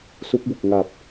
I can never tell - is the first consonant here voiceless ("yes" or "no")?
yes